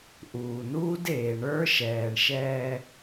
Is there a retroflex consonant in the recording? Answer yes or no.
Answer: yes